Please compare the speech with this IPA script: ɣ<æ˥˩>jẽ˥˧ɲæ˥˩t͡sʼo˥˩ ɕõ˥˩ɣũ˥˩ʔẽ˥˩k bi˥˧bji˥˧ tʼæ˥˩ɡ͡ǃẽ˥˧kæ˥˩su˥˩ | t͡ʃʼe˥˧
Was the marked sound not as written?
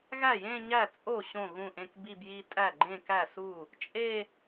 no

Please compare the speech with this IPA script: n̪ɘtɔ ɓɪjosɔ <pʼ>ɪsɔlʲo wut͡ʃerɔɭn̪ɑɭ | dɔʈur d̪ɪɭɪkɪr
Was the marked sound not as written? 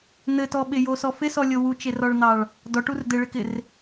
yes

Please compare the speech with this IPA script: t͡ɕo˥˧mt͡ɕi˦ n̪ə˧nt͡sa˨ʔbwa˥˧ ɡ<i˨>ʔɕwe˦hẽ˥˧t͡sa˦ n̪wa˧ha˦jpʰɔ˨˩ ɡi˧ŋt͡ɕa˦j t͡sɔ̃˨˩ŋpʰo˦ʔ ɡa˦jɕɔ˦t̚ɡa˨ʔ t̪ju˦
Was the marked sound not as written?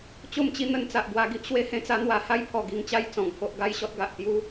yes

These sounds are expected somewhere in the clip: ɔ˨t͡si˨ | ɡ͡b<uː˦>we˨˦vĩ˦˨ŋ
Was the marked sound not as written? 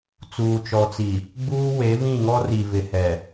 no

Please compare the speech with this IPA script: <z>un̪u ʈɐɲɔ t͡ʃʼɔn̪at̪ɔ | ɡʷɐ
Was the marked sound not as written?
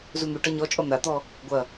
no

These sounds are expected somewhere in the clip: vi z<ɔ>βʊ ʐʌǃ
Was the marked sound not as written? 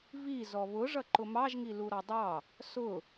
no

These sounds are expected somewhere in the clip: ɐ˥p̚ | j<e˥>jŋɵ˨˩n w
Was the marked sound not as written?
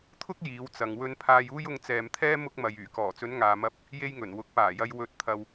no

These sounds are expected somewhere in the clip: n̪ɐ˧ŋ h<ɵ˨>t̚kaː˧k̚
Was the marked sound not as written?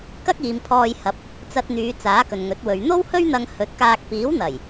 yes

